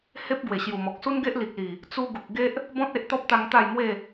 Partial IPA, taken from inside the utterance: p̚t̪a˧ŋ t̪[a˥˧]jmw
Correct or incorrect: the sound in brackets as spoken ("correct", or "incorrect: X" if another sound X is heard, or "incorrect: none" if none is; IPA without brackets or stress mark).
correct